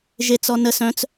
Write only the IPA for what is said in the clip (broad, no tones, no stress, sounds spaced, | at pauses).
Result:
ʒ e t͡s ɔ n ə s œ̃ t͡s